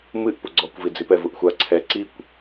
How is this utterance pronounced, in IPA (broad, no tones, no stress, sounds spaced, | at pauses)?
m ɨ ʔ p u ɡ͡ǀ ɔ kʷ v i d͡z i p ɛ v u ʔ xʷ a ǀʰ ɛ ǀ i kʷ